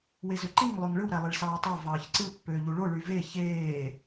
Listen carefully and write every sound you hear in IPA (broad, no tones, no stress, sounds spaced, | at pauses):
w e z ø ǃ i ŋ lˠ ø ŋ ɭ ɯ w ɾ æ lˠ e ɭ s ɑː tˤ ɑ v ɑː ç ǀ ɯ pː øː ʎ u ɭ o ɭ y v e ç eː